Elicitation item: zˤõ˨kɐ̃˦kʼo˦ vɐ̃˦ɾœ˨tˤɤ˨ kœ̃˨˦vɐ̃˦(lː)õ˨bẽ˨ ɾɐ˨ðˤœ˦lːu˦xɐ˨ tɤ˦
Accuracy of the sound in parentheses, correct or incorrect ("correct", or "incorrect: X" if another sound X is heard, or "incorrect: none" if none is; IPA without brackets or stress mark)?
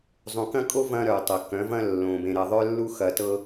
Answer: correct